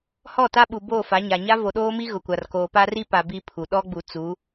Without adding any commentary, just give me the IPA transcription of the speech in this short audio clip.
h ɔ˦˨ t a˦ ɓ u˨ b o˦˨ f a˨˦ ɲ a˨ ɲ a˦ v o˨ ɗ oː˦ m i˦ ɣ ʊ˨ kʷ a˨ r k oː˨ p a˦ r i˦ p a˨ b i˦ pʰ u˨ ɗ ɔ˦ ɡ͡b u˨ t͡s u˨˦

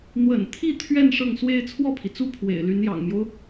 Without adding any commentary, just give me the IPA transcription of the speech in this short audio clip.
n̪ w ə̰˨˩ n t̪ʰ i˥˧ t̪ʰ ɥ ɛ˥˧ n ʂ ɤ˥˩ ŋ s w e˥ ɪ̯ t͡sʰ w ɔ˥˩ pʰ i˩ t͡s u˥˩ pʰ w ḛ˨˩ ɪ̯ l y˧˥ n j ɑ̰˨˩ ŋ m j o˦ ʊ̯

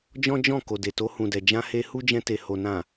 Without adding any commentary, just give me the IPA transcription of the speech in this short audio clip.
d͡ʒ ɔ̃˦ d͡ʒ ɔ̃˦˨ k o˨ d e˨ t o˧ h ũ˨ d ɛ˨ d͡ʒ ã˧ h e˧ h u˦ d͡ʒ ɛ̃˧ t e˨ h o˨ n ã˨

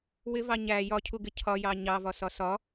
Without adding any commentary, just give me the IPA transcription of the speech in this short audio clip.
w ɪ v ɑ ɲ æ j ɒ cʰ u ɡ ɪ cʰ ɒ j ɑ ɲ ɑ v ɒ s ɒ s ɒ

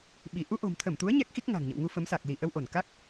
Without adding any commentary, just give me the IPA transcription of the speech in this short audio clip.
ɓ i˧˩ ʔ u˧ ʔ o̤˨˩ m t̪ʰ ə˧˩ m t̪ u˨˦ ə̯ ɲ ɛ˦˥ k̚ x i˦˥ k̚ ŋ a̤˨˩ ŋ ɲ ə̰˧˨ w ŋ u˧ f ə˨˦ m s a˨˩ k̚ l i˧˩ ʔ ə˧ w ʔ o˧˩ n k a˦˥ k̚

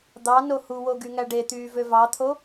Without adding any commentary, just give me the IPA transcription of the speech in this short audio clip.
d̪ ɑ n o h u w o ɡ y ŋ æ ɖ e t̪ yː v ø v ɑ t̪ʰ o

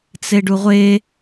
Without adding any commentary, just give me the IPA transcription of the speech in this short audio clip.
t͡s e ɖ u ʁʷ e

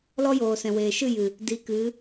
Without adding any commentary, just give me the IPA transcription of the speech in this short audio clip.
l ɔ˦ j oː˨ s ɛ̃˨ w eː˨ ʃ ɨ˦˨ j ɨ˨ | d i˨˦ k ɨ˨˦

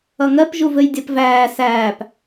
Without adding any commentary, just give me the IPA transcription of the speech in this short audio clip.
ʌ ŋ ɜ p ʒ u v ɘ j dʲ ɜ p v æː s æː p

